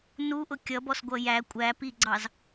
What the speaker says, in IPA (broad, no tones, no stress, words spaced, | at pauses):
nuʔʊ kʲʌbɔsɡʷʌ jæ kʷʼæpiɡ͡ǀɑz